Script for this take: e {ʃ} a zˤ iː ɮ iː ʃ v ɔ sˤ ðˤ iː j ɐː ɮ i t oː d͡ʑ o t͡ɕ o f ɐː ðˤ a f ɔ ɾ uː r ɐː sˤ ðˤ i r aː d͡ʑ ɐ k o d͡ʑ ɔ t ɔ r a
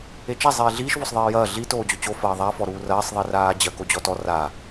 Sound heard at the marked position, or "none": t͡ʃ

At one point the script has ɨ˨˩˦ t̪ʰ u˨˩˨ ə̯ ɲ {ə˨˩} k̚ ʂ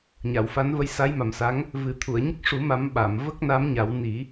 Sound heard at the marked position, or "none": ə˦˥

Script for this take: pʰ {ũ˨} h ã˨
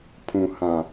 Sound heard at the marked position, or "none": ũ˨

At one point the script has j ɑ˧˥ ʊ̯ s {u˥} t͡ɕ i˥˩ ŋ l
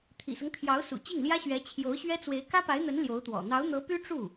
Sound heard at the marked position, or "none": ṵ˨˩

